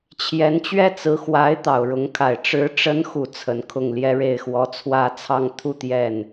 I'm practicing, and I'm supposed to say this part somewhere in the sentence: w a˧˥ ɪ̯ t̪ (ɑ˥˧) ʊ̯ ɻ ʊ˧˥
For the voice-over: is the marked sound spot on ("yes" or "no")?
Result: no